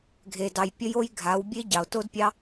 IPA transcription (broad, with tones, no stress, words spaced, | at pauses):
ɡʱe˨dɑ˨j pʲə˧jo˧j ɡʱa˨˦wbʲe˦ ɟɑ˨o̯to˦dpʲɑ˦